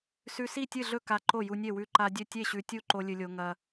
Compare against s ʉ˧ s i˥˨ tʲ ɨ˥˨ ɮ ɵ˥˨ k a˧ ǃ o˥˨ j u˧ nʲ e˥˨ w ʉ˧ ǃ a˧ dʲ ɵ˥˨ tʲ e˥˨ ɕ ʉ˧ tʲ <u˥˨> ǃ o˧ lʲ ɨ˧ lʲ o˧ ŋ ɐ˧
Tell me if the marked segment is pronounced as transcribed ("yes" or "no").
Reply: yes